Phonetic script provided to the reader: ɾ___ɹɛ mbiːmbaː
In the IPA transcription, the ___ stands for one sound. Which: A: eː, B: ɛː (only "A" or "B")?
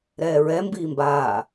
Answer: B